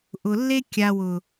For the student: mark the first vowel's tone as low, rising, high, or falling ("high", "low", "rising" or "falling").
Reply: low